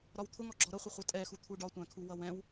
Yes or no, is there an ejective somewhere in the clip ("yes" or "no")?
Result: yes